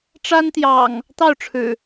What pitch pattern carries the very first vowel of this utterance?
high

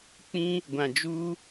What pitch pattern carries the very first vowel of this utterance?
high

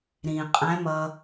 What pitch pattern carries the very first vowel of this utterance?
low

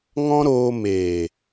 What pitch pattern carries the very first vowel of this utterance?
high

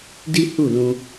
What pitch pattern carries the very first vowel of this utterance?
high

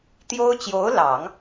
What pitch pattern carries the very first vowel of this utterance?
high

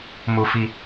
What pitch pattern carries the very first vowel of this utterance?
high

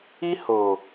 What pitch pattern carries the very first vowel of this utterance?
high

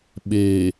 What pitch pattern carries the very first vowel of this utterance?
low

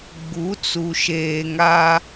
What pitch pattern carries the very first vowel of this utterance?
rising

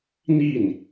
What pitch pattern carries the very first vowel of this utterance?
falling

